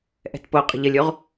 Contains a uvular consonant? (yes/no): yes